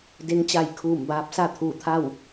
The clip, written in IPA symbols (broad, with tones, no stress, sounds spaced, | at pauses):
d e˧˥ ŋ t͡ɕ a˧˩ j kʰ uː˧˩ m b aː˧ p̚ s a˥˨ t̪ʰ uː˧˩ t̪ʰ a˥˨ w